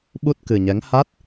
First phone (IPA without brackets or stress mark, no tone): ɓ